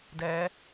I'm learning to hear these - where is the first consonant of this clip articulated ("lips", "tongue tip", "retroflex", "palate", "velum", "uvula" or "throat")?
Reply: tongue tip